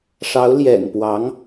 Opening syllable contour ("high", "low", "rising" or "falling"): rising